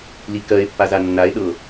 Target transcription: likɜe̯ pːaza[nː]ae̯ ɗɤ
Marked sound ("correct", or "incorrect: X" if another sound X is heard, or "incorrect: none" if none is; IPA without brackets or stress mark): correct